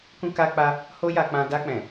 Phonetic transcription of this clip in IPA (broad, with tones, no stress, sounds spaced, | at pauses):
k ũ˧ k a˧ k͡p a˧ | h o˦ j a˧ k͡p ã˧ d a˧ k͡p ɛ̃˨